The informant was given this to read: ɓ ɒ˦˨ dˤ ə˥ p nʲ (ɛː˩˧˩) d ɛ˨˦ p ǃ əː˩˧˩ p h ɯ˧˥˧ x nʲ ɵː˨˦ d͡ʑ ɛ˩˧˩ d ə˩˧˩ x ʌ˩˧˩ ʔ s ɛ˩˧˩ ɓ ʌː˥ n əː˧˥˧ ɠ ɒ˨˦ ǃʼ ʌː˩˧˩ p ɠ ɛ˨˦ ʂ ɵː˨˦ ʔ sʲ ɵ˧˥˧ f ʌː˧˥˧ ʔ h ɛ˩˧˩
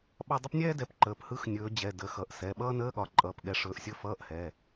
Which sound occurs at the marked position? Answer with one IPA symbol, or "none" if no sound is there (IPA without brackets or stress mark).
ɛː˥